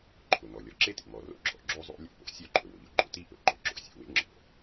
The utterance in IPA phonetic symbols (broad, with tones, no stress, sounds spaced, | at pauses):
ǃʰ ʊ˩ n ɔ˩ lʲ ɔ˩ ǁ e˥ t ḭ˩ m ɔ˩ r o̰˥ ɡ͡ǁ ɔ̰˩ ɡ͡ǁ o˥ zˤ o̰˥ lʲ o̰˥ p o̰˩ sʲ o˥ ǃʰ ɵ˩ w ʊ˩ ʎ ʊ˥ ɡ͡ǃ o̰˥ t i˥ ʔ ɵ˩ ɡ͡ǃ ɔ˥ ǁ o̰˥ sʲ o̰˩ w ḛ˥ ŋ͡ǁ ɔ̰˩